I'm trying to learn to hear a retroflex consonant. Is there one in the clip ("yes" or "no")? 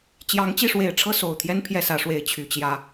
yes